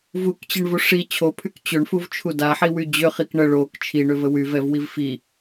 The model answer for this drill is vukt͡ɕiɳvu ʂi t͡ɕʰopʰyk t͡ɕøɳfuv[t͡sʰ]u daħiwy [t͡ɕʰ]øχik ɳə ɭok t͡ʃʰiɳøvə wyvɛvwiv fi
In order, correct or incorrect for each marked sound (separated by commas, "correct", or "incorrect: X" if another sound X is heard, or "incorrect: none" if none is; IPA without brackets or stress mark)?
incorrect: t͡ʃʰ, incorrect: d͡ʑ